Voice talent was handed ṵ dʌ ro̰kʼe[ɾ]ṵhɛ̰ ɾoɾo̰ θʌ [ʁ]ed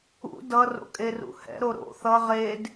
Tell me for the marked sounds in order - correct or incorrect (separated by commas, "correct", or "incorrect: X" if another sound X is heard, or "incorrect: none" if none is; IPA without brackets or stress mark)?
incorrect: r, correct